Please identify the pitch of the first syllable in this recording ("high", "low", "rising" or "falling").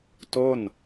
falling